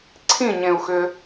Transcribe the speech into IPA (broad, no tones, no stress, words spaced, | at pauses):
ǀʰĩɲẽu̯xʏ